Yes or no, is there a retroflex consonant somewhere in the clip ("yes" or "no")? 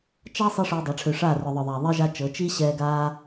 yes